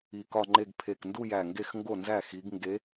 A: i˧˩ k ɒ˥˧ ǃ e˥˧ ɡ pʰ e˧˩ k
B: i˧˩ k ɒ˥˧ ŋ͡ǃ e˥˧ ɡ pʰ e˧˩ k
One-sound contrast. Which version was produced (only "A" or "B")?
B